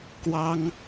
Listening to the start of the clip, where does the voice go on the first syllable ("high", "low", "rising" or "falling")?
high